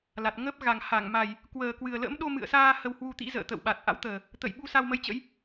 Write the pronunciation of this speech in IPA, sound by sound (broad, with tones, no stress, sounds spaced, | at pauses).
l a˨˩ t̚ ŋ əː˦˥ p̚ ɣ a˨˩ ŋ h a˧˩ ŋ m a˨˩ j | k w əː˨˩ k w ɨ˨˩ ə̯ l ə̰˧˥ m ɗ o˧ m ɨ̰˧˨ ə̯ s aː˧ h ə˧ w h w u˧ t̪ ḭ˧˥ z ə̰ː˧˨ t̪ ə̰˧˨ w ɓ a˨˩ t̚ ʔ a̰˧˥ w t̪ əː˨˩ | t̪ ə̰˧˨ j ɓ u˧ s a˧ w m ə˧ j t͡ɕ ə̰˧˥ j